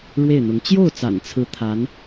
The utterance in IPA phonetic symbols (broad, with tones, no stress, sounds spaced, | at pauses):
ɻ w e˥˩ ɪ̯ n̪ ʊ˧˥ ŋ t͡ɕ j o˥˩ ʊ̯ t͡s a̰˨˩ n t͡sʰ ɹ̩˧˥ t̪ʰ a˧˥ n